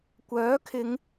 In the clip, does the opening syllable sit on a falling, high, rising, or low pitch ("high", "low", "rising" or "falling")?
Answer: rising